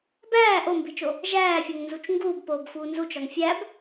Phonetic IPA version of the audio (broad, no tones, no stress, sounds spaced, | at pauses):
b æː ʔ o m b i t͡ʃ o | ʒ æː fʲ o ŋ n z u t͡ʃ ŋ ɡ uː b p oː b f uː n z u t͡ʃ ɒ ŋ fʲ æ b